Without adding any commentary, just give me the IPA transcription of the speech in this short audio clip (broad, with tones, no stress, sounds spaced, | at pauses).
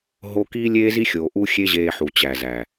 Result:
ɦ o˦ k iː˦ lʲ eː˦ z i˦ xʲ oː˨ ʔ u˦ xʲ e˦ ʑ eː˧ ħ u˨ t͡ɕ æ˨ z æ˨